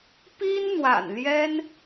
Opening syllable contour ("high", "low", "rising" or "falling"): high